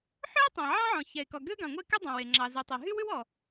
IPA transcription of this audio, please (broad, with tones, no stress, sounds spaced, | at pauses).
ħ ø˥ ɪ̯ tˤ ɛ̃˩ ʕ ɑ̃˥ ʕ ɔ̃˩ ç ɛ˩ ɪ̯ k ɔ˩ ɡ ø˥ ɡ ɑ̃˩ ŋʷ ɛ˥ k ʉ˥ dˤ æ̃˩ w e˩ ŋ͡ǁ ɑ˩ z ʉ˩ tˤ e˩ ɦ y˥ w ʉ˥ w ɔ˩